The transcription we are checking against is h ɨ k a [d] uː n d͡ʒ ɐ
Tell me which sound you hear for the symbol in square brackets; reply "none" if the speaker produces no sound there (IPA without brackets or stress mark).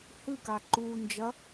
ǃ